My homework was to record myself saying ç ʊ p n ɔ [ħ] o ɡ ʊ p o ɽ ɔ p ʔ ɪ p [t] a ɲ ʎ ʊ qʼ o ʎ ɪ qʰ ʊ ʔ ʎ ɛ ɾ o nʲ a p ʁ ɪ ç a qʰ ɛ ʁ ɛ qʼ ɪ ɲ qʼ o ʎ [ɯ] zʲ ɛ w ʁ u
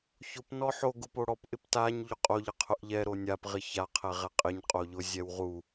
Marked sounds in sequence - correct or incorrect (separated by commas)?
correct, correct, incorrect